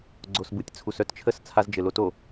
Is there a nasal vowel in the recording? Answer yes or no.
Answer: no